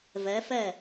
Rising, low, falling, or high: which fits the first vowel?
rising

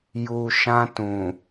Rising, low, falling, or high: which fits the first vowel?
low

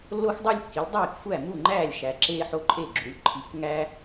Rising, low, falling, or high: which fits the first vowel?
high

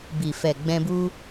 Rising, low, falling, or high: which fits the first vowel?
low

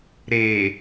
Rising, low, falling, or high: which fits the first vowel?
low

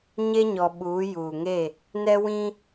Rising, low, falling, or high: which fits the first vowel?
high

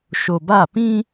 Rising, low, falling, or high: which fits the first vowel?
low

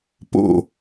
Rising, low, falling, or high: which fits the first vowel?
falling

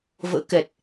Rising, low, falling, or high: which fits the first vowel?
rising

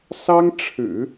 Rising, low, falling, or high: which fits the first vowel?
high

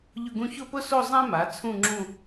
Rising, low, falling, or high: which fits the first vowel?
falling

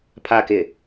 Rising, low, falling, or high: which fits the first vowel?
low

